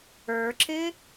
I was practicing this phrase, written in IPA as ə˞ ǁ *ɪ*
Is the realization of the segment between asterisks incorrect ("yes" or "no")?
no